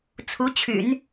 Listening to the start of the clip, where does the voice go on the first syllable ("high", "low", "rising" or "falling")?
rising